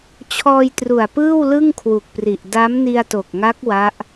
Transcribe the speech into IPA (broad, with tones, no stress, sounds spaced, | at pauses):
t͡ɕʰ ɔː˧ j t r u˨˩ a̯ p ɯː˥˩ w l ɯ˥˩ ŋ kʰ w u˨˩ k̚ p r i˨˩ ʔ d a˦˥ m n i˧ a̯ t o˨˩ k̚ ŋ a˦˥ k̚ w a˦˥ ʔ